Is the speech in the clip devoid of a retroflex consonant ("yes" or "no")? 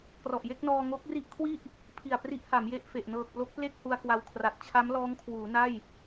yes